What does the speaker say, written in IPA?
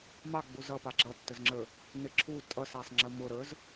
m ɑ ɡ͡b u z ʌ p ɑ ɡ͡ǁ ʌ tː ə z ŋ͡ǁ ə˞ | n ɪ ǁʰ u tʼ ʌ s æ sˤ ŋ͡ǁ ə m ʊ ɾ ə˞ z

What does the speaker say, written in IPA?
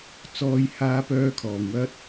t͡s ɔː˥ j h aː˥ p œː˥ kʰ ɔː˧ ŋ w ɐ˥ t̚

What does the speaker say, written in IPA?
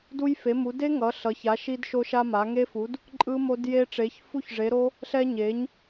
d u˦˥ j f e˩˥ m u˩˥ d e˦˥ ŋ ʌ˩˥ ɬ ʌ˩˥ ç a˩˥ ʃ i˦˥ d ʃ o˦˥ ʃ a˦˥ m a˩˥ ŋ e˦˥ f u˩˥ d | ǃʼ ɯ˦˥ m o˦˥ d j e˦˥ ʈ͡ʂ e˩˥ ç f u˦˥ ç ʐ e˩˥ ɾ o˦˥ | ɬ ɛ˦˥ ɲ e˩˥ ɲ

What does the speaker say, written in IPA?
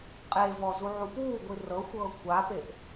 qʼ e v ɔ z u ʕ u p uː ɡʷ i r ɤ xʷ ɤː kʷʰ a p e ʔ

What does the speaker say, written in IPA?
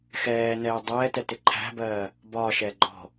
x ɛː n ɛː dˤ ɛː t ɛ t ɪ ǃʰ æ̤ b ɜː | b ɒː ʃ ɛː ɡ͡ǃ ɔ̤

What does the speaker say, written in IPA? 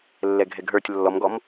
lː ɛ ɡʱ ɛ ɡ ɦ ə˞ tʲ lː ɔ m ɡ ɔ m

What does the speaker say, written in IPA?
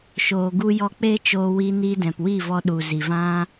ʃ oː˨ ɡ u˧ j ɔ˧ k͡p eː˦ t͡ʃ oː˧ w i˧ n iː˧ d ɛ̃˨ p w i˦˨ v ɔ˧ ɗ u˨ z i˨ v ã˦

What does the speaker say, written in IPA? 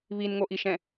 β i n ŋ o ʔ i ʃ ɛ̃

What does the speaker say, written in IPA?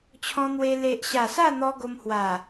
t͡ɕʰ ɔ̃˧ n̪ w e˧ l e˨ ʔ ɕ a˨˩ s a˥˧ n̪ ɔ˧ ɡ o˧ m h w a˨˩

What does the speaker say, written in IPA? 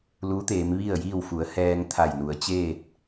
l u˧˥ t̪ eː˩˧ m ʋ i˥˨ ə̯ j iː˥˨ w f u˩˧ ə̯ h ɛː˧ ŋ t̪ʰ a˧˩ j n u˩˧ ə̯ t͡ɕ eː˥˨ t̚

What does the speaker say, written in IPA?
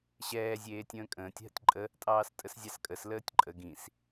ɕ ɛː zʲ eː tʲ ə̃ː kʼ ə̃ː tʲ ɦ ə̰ tʲ ǃʼ ə | tʼ ɑː s tʼ ə s zʲ ɑ s kʼ ə s l əː tʲ ǃʼ ə ɡ ĩ s

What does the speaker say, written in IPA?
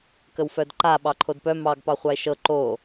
k ə w f œ d ǃ a ɓ ɑ ǃʰ o d p œ m ɑ ɡ p ɑ χʷ ɑ e̯ ʃ ɤ ǃ o

